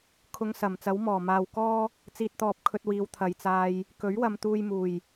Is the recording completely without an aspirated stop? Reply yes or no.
no